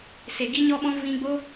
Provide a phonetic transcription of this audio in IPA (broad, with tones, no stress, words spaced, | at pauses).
se˨ ɡi˦ɲɔ˦ɓɔ̃˦ vĩ˧ɡ͡bo˦